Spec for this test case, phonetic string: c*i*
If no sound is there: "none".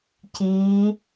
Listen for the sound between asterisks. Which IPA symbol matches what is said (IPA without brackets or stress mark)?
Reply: i